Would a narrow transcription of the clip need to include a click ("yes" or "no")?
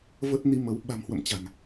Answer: no